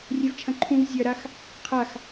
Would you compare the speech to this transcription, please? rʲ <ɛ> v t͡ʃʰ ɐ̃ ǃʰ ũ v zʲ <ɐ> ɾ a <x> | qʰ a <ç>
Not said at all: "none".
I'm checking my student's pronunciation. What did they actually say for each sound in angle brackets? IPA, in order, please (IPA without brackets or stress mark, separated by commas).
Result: ɛ, ɐ, x, x